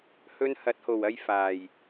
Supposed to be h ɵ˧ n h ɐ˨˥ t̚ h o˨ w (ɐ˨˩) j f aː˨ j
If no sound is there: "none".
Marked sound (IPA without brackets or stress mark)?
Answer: ɐ˧